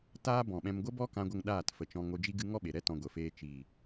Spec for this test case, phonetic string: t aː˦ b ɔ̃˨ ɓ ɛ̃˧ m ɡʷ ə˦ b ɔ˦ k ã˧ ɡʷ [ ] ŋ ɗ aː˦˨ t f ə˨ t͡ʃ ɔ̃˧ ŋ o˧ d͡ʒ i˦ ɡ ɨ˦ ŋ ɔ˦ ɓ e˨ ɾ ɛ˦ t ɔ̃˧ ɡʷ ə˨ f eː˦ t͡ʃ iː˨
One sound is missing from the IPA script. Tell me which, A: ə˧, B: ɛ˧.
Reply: A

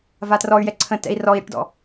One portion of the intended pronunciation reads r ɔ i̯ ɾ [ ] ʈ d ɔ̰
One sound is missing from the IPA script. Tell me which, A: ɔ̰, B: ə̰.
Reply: B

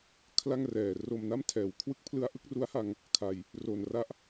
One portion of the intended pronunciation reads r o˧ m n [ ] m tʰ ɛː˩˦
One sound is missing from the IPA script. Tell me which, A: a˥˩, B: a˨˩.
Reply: A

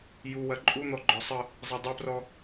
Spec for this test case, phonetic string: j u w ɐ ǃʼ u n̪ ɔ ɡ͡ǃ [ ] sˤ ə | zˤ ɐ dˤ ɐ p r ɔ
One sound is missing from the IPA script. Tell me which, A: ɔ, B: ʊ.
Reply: A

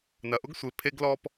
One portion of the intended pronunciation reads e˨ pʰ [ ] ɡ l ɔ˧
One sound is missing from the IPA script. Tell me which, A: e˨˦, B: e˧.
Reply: B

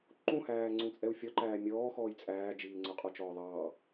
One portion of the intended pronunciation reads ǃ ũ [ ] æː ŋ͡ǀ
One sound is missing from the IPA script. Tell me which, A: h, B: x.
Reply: A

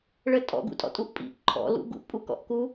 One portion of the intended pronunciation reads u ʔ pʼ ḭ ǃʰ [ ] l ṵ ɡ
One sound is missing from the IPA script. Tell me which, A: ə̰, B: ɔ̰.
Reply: B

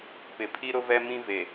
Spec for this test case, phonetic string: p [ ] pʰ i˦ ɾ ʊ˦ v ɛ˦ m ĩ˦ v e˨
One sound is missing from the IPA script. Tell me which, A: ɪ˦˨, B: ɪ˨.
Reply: B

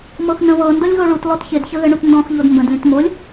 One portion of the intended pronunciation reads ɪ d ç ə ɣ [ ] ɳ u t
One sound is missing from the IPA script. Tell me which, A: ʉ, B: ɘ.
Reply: B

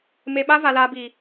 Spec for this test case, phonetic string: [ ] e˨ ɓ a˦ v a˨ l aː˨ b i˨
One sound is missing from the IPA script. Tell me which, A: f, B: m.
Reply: B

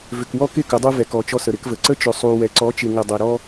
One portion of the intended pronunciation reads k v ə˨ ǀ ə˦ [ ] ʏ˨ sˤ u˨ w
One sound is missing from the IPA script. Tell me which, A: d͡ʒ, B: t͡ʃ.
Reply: B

